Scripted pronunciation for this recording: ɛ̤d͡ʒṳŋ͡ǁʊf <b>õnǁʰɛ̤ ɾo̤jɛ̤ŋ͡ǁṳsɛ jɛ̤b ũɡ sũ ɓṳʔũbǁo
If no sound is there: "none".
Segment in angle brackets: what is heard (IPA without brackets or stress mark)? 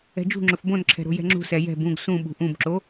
b